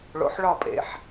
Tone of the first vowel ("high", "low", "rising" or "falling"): low